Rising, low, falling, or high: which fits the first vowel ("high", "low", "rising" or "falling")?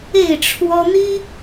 falling